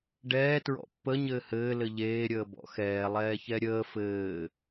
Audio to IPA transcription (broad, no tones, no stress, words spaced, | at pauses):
ɖɛːtɹɔ̰ pːə ɲɘːhɘː lɘʎeːɾʲəː bɔ̰xɛː lˠɛːçɛɾʲəː fɘː